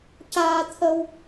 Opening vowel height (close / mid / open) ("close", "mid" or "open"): open